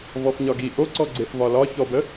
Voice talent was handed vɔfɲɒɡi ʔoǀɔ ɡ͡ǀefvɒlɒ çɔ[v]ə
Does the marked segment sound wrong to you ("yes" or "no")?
yes